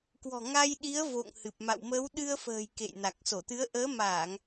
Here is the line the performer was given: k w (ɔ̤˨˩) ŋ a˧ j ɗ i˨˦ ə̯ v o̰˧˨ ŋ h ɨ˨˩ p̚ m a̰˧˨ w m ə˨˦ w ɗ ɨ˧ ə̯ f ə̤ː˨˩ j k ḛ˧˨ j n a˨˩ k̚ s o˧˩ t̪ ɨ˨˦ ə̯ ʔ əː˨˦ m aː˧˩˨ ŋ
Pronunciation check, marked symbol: correct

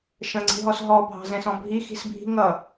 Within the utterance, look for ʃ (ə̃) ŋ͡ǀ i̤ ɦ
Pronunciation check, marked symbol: correct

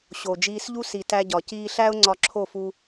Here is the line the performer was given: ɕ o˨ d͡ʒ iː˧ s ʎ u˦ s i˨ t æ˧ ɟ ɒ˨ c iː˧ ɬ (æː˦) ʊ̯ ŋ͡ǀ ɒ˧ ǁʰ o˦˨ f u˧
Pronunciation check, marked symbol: incorrect: æ˦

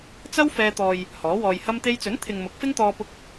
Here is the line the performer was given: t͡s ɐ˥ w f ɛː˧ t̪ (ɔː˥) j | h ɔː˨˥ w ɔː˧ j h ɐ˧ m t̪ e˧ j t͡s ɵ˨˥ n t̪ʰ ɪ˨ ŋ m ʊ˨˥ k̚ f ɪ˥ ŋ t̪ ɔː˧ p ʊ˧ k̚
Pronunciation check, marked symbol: incorrect: ɔː˨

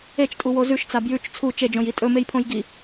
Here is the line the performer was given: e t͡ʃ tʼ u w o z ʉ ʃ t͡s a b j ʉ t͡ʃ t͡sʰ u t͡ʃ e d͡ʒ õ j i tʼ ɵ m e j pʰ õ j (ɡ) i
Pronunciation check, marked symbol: correct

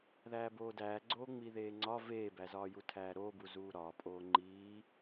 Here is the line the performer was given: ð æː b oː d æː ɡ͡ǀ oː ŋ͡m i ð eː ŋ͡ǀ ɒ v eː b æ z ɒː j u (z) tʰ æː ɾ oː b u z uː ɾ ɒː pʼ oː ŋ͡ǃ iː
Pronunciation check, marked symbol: incorrect: none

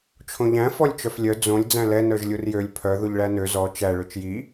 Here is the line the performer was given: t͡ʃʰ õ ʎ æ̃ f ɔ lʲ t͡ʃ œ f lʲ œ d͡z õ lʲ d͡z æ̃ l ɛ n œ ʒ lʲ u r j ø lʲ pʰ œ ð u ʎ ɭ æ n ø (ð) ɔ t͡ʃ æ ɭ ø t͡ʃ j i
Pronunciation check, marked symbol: incorrect: z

